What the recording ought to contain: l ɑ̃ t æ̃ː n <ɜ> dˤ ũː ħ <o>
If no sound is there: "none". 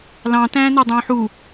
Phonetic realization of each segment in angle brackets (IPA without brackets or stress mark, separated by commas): æ, u